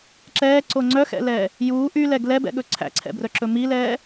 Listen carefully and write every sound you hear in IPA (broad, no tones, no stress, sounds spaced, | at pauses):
ǁ ɛː ǀ o ŋ͡ǀ œ x ɛ̰ l ɛː | j uː ʔ y l ɛ ɡ l ɛ b ɛ̰ ɠ ɵ ǀʰ æ̰ ǀʰ ɛ̰ b r œ ǁ ɵ m i l ɛː